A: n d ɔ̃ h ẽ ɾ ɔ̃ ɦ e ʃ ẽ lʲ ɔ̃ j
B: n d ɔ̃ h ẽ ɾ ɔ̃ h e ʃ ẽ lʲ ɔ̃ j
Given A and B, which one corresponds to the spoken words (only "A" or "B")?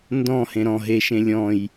A